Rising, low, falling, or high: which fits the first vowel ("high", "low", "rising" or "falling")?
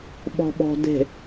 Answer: low